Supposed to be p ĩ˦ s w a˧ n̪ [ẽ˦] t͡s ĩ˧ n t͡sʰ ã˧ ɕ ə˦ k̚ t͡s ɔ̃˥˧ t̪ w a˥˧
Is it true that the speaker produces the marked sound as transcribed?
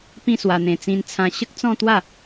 no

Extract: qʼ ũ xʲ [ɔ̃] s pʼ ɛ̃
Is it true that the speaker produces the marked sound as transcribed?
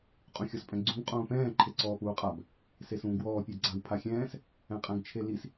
no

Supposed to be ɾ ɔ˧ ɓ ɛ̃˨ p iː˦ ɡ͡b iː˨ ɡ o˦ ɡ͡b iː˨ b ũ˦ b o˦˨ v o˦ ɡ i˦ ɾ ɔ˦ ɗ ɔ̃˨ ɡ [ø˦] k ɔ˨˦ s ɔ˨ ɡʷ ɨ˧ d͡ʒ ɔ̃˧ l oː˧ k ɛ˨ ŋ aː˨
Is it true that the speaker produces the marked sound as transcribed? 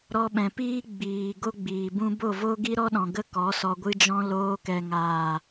no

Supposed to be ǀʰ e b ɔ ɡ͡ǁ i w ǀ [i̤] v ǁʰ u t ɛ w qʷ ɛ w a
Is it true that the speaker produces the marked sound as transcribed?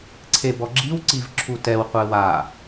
no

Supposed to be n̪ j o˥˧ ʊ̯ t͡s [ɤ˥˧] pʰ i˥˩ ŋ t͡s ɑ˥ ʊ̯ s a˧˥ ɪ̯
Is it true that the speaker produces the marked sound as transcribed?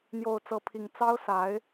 yes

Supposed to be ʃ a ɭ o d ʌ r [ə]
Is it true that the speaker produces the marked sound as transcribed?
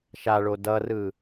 no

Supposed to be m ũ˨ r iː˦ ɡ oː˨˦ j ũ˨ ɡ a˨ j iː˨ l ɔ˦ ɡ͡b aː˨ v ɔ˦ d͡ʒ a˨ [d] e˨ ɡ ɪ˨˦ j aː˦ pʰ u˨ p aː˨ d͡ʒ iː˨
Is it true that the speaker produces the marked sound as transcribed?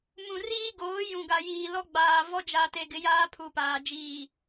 no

